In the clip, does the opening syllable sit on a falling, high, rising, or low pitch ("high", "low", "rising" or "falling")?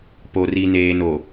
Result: low